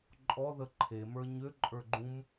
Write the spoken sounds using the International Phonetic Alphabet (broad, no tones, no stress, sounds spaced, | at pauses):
ǃʼ ɔ ð ə ǃʰ e m ə˞ ɲ ø ǃʼ ə˞ ɡ͡ǃ ũ m